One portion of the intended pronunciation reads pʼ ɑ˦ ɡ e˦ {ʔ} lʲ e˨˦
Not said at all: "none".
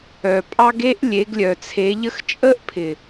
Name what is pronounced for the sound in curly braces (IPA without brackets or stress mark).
ʔ